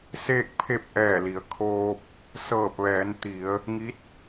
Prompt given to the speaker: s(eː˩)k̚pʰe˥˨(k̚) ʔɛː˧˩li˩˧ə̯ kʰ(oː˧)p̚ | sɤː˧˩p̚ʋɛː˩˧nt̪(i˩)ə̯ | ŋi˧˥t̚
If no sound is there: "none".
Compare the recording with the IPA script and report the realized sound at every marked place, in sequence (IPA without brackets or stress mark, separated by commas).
eː˥˨, p̚, oː˧, i˩˧